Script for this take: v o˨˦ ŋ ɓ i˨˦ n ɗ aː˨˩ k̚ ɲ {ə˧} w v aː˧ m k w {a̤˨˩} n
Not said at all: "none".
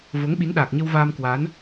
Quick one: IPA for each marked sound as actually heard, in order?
ə˧, a˨˦

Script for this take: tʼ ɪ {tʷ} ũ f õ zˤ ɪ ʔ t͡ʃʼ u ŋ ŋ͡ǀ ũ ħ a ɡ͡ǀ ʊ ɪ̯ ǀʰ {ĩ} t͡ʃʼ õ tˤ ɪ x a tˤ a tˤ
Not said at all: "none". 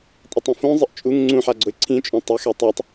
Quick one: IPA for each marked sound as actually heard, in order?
tˤ, ĩ

